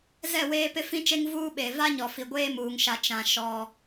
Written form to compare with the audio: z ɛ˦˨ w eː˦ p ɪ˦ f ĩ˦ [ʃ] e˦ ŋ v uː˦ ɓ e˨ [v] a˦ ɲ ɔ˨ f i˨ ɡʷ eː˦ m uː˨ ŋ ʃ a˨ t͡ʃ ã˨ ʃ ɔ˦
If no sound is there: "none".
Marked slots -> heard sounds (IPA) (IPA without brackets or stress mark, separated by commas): t͡ʃ, v